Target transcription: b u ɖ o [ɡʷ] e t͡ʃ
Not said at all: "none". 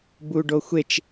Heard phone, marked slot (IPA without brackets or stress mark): xʷ